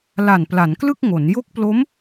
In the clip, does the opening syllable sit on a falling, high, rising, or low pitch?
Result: low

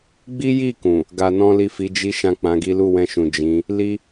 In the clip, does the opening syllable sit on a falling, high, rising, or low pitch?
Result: high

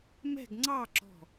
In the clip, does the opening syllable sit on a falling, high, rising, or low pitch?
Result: falling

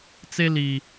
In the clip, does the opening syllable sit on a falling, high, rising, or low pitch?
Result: high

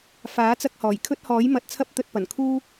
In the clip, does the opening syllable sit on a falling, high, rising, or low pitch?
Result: rising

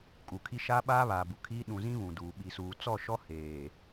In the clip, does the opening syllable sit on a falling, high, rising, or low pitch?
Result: low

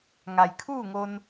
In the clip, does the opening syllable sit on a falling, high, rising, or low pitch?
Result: low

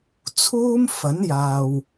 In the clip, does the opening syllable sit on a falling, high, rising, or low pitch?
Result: high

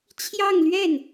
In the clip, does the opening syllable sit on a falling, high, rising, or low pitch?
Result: falling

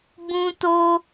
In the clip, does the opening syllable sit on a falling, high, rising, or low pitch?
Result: high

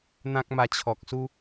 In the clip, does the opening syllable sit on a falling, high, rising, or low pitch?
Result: high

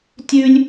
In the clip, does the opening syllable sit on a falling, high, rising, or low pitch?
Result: high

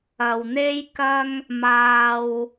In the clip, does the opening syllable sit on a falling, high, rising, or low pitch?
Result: low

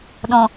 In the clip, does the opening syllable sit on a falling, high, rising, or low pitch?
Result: low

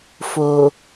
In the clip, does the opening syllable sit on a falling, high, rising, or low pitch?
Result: low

